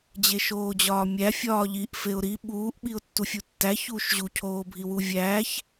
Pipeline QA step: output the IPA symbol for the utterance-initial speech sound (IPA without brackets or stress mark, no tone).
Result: d͡ʑ